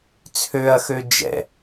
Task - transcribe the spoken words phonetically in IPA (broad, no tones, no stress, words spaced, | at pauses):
t͡sʰøɐ̯xø d͡ʒɛ̰